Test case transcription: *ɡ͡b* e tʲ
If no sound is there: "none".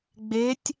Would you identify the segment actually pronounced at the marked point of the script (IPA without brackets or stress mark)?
ɡ͡b